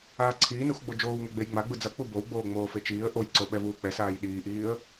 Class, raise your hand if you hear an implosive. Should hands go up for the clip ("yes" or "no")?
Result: yes